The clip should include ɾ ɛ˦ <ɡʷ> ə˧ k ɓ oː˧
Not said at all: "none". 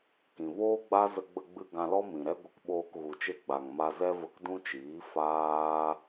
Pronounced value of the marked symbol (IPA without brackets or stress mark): ɡʷ